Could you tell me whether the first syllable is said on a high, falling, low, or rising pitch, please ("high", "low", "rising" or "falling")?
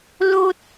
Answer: high